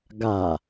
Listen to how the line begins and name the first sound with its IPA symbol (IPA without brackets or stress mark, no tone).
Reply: ɡ